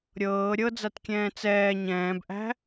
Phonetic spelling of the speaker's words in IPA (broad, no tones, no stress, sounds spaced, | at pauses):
ɾʲ ɤː ɾʲ ɤ d͡z a t kʲ ɛ̃ː t͡s ɛː ɲ ɛ̃ː b ʔ æ̤